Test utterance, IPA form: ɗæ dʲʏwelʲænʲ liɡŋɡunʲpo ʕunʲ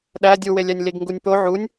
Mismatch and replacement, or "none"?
ʏ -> u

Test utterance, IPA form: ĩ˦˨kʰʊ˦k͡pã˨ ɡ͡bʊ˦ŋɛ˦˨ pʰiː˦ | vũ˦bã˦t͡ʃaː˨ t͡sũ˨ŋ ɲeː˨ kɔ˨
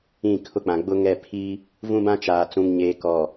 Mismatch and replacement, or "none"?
none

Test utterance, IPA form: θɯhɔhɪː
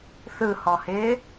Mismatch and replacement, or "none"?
none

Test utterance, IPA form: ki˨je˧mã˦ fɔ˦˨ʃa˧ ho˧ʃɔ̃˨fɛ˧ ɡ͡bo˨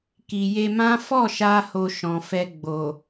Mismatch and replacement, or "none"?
none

